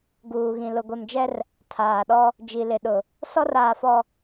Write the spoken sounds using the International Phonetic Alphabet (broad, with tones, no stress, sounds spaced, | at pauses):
ɡ uː˨ ɣ ĩ˨ l ʊ˨ ɡʷ e˨ m d͡ʒ ɛ˦ r | tʰ aː˨ ɗ ɔ˦ | d͡ʒ i˨ l ɪ˨ ɗ ʊ˨ | s ɔ˦ r aː˨ f ɔ˨